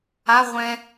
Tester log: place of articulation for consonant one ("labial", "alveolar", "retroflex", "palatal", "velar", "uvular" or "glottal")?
uvular